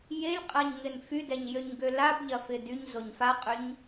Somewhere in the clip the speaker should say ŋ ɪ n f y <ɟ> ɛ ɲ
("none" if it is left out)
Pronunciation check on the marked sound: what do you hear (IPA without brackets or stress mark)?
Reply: d